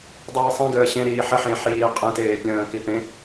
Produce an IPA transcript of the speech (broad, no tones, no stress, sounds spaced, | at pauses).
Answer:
dˤ iː sˤ ĩ ɡ əː ɕ ẽ ɾ iː ħ ə ħ ẽ ħ iː qʼ ẽ t eː pʲ ə̃ː k i p ẽ